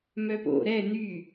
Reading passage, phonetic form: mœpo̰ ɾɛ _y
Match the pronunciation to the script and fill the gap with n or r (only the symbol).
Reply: n